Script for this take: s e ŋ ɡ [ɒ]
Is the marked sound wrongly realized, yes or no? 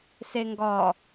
no